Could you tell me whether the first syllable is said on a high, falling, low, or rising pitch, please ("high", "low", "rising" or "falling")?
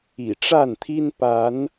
low